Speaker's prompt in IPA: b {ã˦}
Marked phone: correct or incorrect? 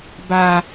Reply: incorrect